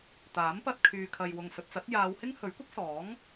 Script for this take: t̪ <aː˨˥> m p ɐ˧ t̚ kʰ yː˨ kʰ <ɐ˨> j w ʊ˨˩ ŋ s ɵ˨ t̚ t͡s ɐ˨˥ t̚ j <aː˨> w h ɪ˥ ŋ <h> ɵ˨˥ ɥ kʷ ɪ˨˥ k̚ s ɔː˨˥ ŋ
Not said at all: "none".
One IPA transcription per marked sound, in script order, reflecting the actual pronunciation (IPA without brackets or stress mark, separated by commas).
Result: aː˨˥, ɐ˨, aː˨˧, h